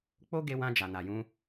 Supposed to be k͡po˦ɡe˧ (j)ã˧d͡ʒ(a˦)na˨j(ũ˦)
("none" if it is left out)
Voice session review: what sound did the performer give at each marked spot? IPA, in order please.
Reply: w, a˨, ũ˧

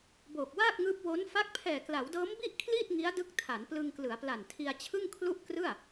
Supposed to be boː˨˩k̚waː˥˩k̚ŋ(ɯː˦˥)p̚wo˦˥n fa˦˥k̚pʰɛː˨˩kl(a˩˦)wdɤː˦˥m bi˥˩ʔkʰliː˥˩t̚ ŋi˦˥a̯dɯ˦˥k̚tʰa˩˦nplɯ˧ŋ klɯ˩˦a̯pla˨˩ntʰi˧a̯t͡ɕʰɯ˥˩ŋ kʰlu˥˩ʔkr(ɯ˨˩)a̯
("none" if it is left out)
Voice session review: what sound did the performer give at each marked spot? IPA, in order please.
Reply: ɯː˦˥, a˩˦, ɯ˥˩

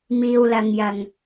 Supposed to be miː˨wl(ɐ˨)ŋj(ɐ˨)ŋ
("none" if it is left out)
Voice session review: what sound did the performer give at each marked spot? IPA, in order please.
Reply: ɐ˨, ɐ˨

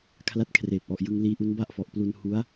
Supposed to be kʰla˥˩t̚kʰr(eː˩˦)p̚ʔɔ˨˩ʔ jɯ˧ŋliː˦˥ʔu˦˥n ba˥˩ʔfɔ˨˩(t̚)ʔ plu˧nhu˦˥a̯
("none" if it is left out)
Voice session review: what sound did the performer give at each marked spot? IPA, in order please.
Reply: eː˨˩, none

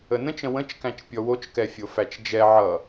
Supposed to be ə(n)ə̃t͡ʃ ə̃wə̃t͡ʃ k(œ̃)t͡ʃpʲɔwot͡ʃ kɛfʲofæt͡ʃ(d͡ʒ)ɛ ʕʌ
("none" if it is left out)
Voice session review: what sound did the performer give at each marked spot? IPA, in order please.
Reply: n, æ̃, d͡ʒ

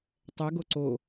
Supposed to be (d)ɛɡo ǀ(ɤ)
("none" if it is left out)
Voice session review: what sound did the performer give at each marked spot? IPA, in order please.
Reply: tˤ, o

